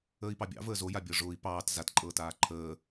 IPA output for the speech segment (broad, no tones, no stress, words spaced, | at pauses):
əːi̯pɑbʲɑ̰ vəːzoja bʲɤʐʊːi̯ pɑːt zatǃʼɤːtaː ǃʰəː